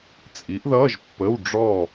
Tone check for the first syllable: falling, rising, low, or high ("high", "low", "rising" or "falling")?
rising